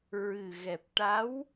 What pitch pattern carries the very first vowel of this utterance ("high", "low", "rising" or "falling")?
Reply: low